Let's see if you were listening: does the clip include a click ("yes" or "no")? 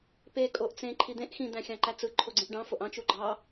yes